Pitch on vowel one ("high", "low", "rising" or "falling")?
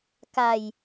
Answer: low